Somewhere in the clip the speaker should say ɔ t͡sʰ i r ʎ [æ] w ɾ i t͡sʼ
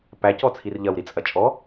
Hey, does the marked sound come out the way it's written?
no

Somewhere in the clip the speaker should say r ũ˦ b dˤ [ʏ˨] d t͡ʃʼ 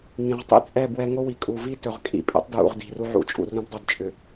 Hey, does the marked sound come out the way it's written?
no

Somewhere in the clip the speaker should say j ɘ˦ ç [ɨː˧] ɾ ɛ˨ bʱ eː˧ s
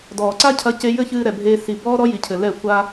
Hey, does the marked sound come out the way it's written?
yes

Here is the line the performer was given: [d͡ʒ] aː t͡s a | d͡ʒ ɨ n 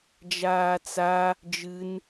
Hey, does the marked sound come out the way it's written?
yes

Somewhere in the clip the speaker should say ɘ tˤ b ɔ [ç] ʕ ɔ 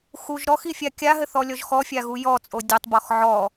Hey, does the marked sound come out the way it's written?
no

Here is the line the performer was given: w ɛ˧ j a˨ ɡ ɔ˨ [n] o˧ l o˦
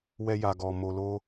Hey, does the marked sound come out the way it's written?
no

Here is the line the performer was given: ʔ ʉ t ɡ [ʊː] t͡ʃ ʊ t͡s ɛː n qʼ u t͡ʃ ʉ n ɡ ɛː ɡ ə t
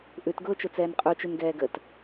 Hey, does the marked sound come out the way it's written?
yes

